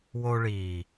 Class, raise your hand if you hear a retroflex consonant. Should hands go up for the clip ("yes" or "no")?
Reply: yes